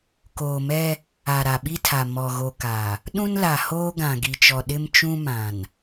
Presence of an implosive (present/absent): present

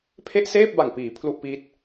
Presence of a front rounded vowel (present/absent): absent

